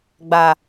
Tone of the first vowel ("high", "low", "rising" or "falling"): low